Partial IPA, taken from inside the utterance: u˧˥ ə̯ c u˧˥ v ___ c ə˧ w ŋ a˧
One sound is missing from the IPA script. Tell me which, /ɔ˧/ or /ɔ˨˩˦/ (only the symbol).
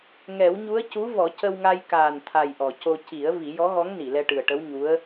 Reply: ɔ˨˩˦